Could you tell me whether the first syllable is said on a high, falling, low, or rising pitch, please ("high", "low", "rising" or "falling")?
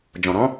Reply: low